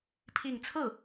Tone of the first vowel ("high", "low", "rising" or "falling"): falling